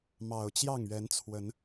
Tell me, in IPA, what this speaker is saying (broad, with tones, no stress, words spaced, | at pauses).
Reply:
mɑ˨˩ʊ̯t͡ɕjɑ˥˨ŋɥɛ˨˦nt͡sʰwə˨˦n